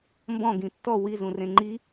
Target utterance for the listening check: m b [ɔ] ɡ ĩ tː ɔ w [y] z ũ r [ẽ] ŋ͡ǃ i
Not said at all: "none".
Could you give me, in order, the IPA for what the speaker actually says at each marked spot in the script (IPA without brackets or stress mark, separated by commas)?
ɔ̃, i, ẽ